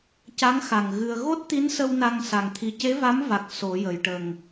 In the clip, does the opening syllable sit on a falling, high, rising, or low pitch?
rising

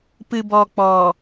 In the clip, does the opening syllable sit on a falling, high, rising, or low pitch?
low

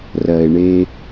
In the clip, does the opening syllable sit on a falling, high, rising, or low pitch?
low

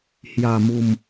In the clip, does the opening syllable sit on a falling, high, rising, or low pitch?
low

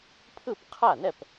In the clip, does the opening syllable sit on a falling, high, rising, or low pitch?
falling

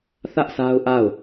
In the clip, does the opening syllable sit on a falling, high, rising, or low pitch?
high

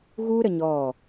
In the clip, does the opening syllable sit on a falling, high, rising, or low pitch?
high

